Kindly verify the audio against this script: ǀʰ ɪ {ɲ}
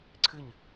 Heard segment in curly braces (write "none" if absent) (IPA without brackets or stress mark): ɲ